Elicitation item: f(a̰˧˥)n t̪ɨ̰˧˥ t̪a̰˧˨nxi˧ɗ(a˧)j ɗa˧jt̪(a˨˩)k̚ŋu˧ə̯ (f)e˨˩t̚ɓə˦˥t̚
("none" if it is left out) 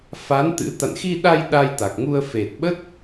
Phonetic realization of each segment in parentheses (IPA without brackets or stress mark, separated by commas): a˨˦, a˧, a˨˩, f